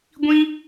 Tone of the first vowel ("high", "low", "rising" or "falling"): high